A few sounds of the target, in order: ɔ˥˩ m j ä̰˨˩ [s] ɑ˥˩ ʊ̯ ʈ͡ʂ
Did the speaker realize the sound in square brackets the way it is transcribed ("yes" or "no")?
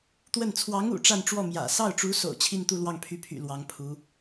yes